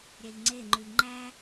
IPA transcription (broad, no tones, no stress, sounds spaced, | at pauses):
ɾʲ ɛ ʎ ŋ͡ǀ e ŋ͡ǃ ʉ ʎ ŋ͡ǃ æ